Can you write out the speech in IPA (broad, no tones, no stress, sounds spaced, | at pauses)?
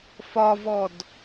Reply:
f ɒ v ɔ d